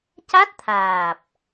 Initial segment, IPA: c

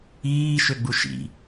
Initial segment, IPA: iː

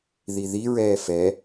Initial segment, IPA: ð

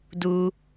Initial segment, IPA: d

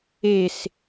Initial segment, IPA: e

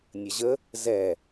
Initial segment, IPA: nʲ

